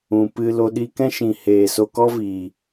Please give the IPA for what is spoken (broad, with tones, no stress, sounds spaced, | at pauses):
ũ˨ p ɨ˧ l o˧ ɗ i˧ k ɛ̃˦ ʃ ĩ˨ h eː˨ s o˧ k ɔ˦ v iː˨